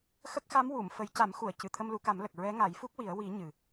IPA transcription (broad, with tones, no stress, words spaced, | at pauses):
xə˦˥k̚xa˧˥m wu˨˩˨m fə˨˩˦jca˨˩˦mxu˨˩˨ə̯ cɨ˨˩˨t̪ʰə˧mlu˨˩˦ka˨˩˦m lə˨˩k̚ ɹɛ˧˥ŋa˨˩˦jfu˦˥k̚wi˨˩˦ə̯ wi˨˩˦ ɲɨ˨˩